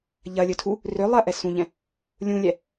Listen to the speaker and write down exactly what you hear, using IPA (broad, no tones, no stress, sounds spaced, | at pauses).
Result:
ʎ ɐ lʲ ɵ tʰ u | r ʏ lˠ ɐ ʔ ɛ s ũ ʎ ɛ̃ | lʲ ũ lʲ ɛ